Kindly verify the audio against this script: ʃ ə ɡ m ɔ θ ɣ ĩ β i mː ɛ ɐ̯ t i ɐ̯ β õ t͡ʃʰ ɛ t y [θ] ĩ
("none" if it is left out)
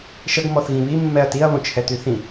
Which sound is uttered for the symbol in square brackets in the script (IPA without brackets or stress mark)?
θ